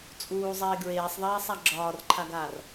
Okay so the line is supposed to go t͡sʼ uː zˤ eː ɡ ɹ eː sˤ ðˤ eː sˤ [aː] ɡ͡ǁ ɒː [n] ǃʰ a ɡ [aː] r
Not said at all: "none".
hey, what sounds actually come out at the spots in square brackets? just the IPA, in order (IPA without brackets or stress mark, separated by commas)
a, r, aː